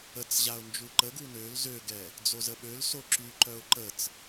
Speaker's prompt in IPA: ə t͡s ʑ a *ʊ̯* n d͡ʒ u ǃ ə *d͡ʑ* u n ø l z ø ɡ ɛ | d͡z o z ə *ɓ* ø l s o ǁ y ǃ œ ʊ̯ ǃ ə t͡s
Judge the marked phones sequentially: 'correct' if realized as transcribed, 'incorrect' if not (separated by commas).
correct, incorrect, correct